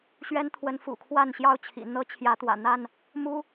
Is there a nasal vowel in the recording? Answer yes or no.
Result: no